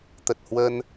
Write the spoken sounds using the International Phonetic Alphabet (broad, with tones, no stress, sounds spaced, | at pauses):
t̪ ə˨˩ t̚ h w ə˧ n